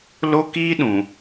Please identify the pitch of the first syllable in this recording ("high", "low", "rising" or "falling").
high